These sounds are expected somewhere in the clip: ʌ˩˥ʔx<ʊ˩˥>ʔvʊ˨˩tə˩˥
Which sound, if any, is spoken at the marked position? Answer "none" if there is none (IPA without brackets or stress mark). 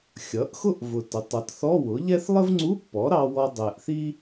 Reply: ʊ˥